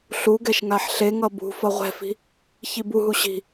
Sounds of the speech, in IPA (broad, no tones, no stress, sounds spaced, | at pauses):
ɬ u ɡ ɛ ʃ ŋ a ħ ɬ e ŋ ʌ b ṳ f ʌ ʁʷ ɛ̤ f i̤ | ç i b u ɦ u ɕ i̤